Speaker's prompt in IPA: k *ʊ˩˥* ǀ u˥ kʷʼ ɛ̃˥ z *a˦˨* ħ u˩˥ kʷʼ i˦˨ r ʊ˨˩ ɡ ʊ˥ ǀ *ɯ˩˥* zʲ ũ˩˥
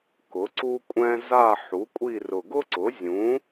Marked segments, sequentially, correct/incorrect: correct, correct, incorrect: ʊ˩˥

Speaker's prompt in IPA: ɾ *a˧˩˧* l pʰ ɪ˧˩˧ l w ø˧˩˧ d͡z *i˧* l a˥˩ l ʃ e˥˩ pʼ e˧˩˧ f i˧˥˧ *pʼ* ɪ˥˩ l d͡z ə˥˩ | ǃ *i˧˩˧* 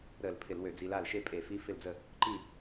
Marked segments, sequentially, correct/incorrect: incorrect: ə˧˩˧, correct, incorrect: f, incorrect: i˥˩

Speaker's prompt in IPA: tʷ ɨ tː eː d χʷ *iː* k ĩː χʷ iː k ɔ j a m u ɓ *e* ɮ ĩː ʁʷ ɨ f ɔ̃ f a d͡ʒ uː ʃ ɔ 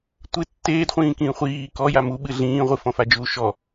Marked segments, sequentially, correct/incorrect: incorrect: ĩː, incorrect: ɨ

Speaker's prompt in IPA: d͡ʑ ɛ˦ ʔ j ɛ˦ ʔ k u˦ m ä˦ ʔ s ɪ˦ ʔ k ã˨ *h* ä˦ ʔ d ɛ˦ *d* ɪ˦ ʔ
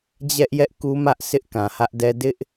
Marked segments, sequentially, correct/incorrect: correct, correct

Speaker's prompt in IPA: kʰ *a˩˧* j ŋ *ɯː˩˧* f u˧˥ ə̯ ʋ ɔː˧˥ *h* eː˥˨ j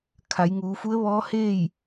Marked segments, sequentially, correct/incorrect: correct, incorrect: uː˩˧, correct

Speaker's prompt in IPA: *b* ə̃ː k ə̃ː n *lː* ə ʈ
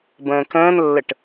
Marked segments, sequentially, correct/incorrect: correct, correct

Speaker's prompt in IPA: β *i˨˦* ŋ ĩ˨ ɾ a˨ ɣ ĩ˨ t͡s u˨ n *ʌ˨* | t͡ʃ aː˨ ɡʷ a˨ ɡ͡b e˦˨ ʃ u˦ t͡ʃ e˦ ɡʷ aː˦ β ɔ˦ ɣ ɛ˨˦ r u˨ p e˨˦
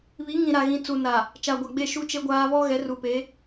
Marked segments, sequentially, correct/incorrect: correct, incorrect: a˨

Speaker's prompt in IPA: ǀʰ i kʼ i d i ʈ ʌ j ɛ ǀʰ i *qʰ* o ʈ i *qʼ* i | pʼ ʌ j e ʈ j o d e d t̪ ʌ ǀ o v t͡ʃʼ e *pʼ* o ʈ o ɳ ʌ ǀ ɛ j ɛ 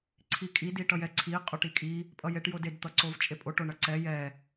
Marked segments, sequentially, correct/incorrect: incorrect: qʼ, incorrect: kʼ, correct

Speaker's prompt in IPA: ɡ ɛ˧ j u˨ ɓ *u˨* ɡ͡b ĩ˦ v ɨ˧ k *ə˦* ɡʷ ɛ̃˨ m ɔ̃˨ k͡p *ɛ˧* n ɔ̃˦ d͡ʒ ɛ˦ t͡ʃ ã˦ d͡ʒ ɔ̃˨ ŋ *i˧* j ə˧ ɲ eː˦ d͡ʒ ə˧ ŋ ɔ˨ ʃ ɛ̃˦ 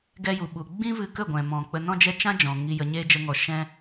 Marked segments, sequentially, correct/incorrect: correct, incorrect: ə˦˨, incorrect: ə˧, correct

